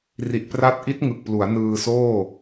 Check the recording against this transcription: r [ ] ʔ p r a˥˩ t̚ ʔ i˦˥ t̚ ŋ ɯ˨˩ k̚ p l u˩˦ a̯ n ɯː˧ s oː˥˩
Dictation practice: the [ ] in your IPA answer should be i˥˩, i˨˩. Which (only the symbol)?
i˨˩